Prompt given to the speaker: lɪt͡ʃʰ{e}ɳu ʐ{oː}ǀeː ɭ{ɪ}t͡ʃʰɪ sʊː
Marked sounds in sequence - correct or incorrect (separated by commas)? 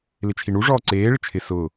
incorrect, incorrect, correct